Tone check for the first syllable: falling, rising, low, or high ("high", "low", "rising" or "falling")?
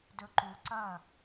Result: low